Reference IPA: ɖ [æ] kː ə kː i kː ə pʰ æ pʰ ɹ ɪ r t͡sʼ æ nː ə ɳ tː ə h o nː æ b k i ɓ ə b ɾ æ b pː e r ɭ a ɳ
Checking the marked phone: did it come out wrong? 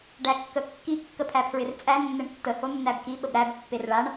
no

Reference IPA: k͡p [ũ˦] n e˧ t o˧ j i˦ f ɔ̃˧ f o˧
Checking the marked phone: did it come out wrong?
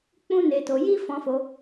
no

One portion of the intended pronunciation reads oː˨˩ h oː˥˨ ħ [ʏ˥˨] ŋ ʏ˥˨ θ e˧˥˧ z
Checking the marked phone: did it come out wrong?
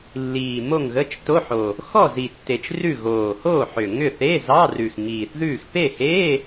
yes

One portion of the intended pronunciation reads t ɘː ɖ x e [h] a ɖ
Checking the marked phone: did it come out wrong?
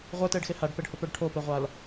no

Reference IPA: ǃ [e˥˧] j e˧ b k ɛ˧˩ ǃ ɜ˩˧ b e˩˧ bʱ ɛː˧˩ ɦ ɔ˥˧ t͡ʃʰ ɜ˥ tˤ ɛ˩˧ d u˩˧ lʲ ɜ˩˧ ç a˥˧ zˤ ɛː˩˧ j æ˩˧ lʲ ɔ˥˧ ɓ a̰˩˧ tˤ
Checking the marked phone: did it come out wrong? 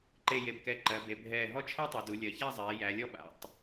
no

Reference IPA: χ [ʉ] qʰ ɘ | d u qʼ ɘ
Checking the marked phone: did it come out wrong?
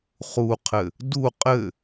yes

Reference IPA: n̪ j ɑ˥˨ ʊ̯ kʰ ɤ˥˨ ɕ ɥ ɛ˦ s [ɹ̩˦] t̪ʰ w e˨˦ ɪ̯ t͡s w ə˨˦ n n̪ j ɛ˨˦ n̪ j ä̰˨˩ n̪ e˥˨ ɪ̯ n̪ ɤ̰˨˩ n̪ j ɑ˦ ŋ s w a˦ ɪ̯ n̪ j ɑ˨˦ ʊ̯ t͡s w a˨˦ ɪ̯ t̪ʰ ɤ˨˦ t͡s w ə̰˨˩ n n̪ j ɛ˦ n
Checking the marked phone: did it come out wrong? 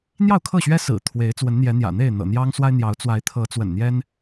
yes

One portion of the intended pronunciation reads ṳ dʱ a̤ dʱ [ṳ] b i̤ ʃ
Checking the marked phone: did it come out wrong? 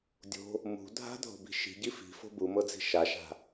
yes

